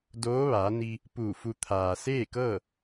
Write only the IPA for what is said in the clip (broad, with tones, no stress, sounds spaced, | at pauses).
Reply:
d oː˧˥ ʋ aː˩˧ n i˧ | p uː˧˩ f u˧ t̪ʰ aː˩ s eː˥˨ k ɤː˥˨